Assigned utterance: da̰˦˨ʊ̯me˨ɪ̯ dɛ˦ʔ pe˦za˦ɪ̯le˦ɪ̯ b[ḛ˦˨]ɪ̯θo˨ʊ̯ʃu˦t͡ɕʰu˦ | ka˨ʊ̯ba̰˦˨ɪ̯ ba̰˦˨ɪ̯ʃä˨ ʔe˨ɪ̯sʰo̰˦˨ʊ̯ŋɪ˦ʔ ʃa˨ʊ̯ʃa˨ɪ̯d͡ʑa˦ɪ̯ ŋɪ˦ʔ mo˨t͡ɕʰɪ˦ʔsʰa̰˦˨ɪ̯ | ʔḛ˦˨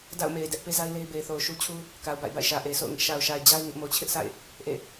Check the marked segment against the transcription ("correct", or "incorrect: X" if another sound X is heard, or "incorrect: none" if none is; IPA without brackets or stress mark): incorrect: e˨